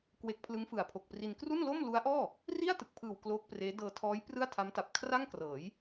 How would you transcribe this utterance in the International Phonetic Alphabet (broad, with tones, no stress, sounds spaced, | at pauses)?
k w e˦˥ k̚ pʰ l ɯ˦˥ ŋ f ɯ˨˩ a̯ pʰ o˨˩ k̚ p r i˧ n k r u˥˩ n l o˥˩ m l u˦˥ a̯ ʔ ɔː˥˩ | r i˥˩ a̯ t ɯ˨˩ k̚ pʰ ɯː˨˩ w k l oː˦˥ k̚ p r eː˦˥ d ɤː˧ tʰ ɔː˦˥ j p r ɯ˥˩ a̯ tʰ a˦˥ m t a˨˩ p̚ kʰ r a˥˩ ŋ k r ɤː˩˦ j